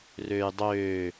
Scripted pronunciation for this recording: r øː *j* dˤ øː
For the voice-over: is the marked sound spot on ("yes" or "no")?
yes